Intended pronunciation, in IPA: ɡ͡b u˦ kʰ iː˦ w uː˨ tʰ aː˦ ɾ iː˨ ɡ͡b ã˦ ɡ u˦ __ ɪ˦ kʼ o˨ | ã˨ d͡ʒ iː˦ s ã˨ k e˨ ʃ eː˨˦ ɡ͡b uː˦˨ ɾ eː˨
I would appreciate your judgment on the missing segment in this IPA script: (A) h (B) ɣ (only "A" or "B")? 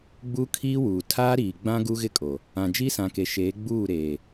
B